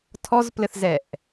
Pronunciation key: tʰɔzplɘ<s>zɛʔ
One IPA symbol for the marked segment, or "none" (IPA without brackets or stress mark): θ